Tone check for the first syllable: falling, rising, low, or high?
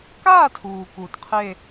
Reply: falling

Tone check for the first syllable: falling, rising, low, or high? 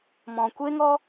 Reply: low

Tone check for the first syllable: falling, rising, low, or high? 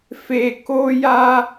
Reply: high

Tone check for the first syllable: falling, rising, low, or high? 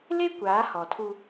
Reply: high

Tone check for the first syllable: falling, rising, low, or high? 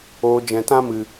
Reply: low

